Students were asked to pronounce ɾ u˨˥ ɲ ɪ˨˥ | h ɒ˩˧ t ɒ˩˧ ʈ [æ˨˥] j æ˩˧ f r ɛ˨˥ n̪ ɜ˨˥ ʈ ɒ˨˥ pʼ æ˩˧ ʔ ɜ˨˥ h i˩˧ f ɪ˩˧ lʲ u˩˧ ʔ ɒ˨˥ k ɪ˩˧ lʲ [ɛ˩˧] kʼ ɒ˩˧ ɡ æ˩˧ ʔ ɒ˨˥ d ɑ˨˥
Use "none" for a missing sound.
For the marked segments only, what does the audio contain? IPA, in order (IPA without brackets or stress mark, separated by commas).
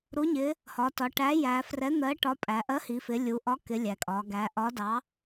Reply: æ˨˥, æ˩˧